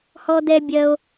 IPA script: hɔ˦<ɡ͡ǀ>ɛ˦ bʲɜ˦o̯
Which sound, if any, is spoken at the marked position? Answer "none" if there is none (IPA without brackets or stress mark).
d̪